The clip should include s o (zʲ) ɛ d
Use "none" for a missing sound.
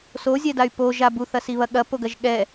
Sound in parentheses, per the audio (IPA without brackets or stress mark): zʲ